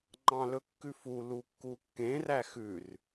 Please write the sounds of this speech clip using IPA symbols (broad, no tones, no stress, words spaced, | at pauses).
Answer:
ŋ͡ǃɑ̃lɵkːʉfu lukːukːẽ ræxʉr